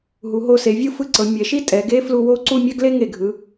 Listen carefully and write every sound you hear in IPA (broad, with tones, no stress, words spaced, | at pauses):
ɦu˩˧ɦo˧se˩˧vʲɯ˥˧ fɯ˥˧ǀɤ˩˧ mʲɛ˩˧ʃi˥ tʼɛ˩˧ɡe˥ flu˧wo˥ ǀu˥˧ mʲa˥ɡle˥ŋe˧˩ ɡʱɯ˩˧